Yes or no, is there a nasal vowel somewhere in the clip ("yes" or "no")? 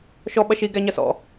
no